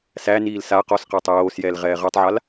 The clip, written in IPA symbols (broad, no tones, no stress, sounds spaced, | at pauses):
s æ n iː l s a q ɔ s q aː tˤ j oː s j ɛː l ʁ ɛː ʁ ɜ tˤ ʕ a l